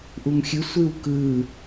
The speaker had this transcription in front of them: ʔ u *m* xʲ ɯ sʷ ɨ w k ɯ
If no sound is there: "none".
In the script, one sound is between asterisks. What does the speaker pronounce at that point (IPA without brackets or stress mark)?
m